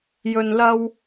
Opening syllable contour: low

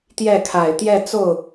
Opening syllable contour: falling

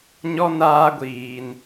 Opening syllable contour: high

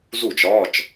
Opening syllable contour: falling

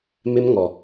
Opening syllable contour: high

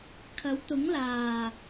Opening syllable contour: rising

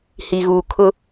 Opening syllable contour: low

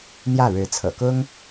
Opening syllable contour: falling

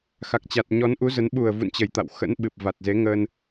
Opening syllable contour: low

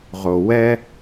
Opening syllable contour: low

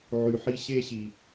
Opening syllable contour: low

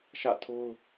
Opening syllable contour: falling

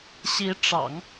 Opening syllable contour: rising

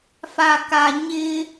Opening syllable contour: low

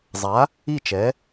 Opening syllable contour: rising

